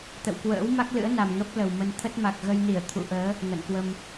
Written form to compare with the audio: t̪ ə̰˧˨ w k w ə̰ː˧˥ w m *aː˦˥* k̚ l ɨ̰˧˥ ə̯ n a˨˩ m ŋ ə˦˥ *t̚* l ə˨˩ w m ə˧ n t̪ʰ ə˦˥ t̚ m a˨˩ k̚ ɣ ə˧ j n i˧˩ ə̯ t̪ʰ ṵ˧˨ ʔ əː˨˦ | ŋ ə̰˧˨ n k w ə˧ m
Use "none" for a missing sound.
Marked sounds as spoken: a˦˥, p̚

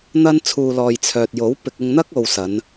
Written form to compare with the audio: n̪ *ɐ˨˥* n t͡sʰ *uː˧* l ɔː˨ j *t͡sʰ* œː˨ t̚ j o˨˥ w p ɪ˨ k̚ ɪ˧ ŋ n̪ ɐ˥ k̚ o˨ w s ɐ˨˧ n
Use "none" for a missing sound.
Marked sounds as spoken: ɐ˥, uː˧, t͡sʰ

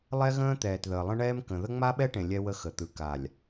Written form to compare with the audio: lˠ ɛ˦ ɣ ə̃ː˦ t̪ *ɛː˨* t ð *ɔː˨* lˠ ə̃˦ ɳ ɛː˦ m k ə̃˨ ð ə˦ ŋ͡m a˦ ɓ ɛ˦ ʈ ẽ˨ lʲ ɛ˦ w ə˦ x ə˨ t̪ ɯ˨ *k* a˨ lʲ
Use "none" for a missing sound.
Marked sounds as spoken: ɛː˨, əː˨, k

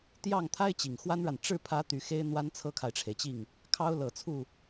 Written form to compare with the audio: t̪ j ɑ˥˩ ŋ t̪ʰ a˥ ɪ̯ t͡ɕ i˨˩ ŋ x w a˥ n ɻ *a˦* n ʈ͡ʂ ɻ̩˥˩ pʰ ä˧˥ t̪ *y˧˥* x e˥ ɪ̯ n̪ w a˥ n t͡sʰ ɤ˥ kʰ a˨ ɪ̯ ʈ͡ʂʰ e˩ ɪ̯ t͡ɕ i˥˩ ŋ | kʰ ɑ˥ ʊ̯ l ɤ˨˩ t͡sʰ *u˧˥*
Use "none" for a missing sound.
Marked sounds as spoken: a˨, y˧˥, u˥˩

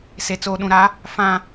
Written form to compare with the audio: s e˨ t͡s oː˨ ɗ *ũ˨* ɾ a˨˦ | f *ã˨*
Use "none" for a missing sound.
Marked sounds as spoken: ũ˨, ã˨

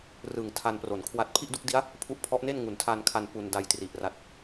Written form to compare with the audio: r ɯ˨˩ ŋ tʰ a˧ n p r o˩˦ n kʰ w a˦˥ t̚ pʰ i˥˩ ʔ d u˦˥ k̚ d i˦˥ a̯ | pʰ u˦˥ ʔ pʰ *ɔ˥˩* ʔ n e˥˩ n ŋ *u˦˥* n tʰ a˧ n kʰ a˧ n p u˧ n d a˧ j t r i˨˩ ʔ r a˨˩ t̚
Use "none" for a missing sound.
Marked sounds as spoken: ɔ˦˥, u˩˦

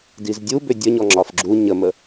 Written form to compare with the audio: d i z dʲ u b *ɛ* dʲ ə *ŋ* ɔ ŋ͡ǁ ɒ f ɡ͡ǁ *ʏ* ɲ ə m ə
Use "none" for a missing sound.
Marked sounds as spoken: ʏ, ɲ, u

